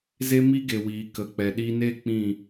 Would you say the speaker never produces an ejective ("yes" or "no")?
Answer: yes